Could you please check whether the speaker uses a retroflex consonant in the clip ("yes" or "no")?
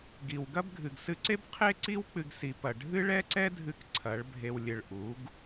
yes